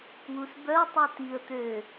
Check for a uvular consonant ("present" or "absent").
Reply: absent